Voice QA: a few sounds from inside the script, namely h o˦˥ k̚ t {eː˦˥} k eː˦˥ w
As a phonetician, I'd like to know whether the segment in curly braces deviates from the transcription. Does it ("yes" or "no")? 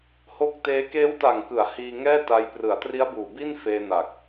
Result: no